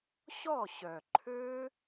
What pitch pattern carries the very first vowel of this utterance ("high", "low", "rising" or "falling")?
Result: falling